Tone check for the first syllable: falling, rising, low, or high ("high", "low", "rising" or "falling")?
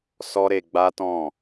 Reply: high